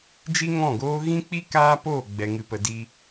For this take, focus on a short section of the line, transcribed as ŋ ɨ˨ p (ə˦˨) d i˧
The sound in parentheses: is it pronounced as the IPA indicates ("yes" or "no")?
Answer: no